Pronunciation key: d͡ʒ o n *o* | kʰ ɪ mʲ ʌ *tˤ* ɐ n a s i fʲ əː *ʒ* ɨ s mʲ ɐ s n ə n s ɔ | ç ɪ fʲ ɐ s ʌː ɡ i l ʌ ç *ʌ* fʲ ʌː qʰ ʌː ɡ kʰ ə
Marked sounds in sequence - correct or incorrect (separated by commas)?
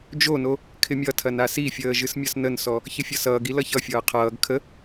correct, incorrect, correct, correct